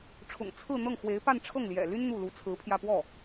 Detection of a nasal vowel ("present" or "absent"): absent